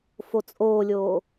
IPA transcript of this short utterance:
f o t͡sʼ oː lʲ oː

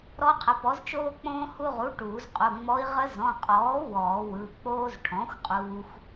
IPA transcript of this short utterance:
ɾ ɔ˧˥ qʰ ə˩˥ p ɔ˩˥ z t͡ʃ oː˧ k͡p õː˧ h u˧ ʁ u˩˥ ʈ uː˨˩˦ z qʼ u˩˧˩ ŋ͡m ɔ˧˥ i̯ ʁ ə˧˥ z ɔ̃˩˧˩ qʼ ɔː˩˥ w ɔː˨˩˦ w ɯ˩˧˩ k͡p oː˧ z ʈʰ ɔ̃˩˥ xʷ qʼ uː˧ xʷ

